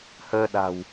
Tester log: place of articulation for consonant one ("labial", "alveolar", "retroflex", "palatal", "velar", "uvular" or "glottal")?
glottal